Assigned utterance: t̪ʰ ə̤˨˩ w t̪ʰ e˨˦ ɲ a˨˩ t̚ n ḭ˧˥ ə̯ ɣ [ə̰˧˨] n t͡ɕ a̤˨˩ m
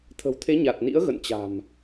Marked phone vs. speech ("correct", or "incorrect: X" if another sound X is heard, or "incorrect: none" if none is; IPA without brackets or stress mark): correct